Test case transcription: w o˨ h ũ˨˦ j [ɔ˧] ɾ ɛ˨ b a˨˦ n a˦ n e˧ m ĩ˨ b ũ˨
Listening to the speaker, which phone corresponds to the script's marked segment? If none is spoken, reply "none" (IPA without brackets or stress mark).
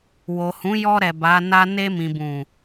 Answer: ɔ˧